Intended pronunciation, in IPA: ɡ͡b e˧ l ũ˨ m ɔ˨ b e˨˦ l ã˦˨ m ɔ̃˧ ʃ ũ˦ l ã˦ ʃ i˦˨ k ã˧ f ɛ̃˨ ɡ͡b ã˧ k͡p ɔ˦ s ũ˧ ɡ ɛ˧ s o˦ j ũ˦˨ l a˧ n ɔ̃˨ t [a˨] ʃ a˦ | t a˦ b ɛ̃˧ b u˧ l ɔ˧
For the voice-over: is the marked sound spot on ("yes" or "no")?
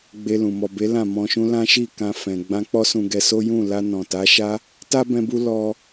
no